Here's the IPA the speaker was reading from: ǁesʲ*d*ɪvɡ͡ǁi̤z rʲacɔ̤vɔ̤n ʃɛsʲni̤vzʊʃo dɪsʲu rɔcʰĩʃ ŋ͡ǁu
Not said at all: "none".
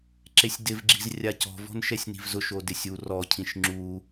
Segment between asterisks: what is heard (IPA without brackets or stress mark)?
d